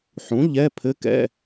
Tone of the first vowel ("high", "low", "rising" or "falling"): rising